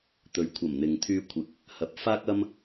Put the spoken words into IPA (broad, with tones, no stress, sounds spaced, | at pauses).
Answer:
t̪ ɵ˨ ɥ kʷʰ ɐ˨˩ m n̪ ɪ˨ ŋ t̪ʰ yː˧ kʷʰ ɪ˨˥ k̚ | h ɐ˨˥ p̚ f aː˥ k̚ ɐ˥ m